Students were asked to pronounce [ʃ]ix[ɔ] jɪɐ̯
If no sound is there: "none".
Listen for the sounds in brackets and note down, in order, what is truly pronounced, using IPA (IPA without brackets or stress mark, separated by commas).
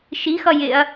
ʃ, ʌ